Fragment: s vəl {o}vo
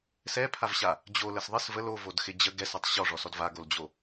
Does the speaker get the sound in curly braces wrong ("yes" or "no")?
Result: no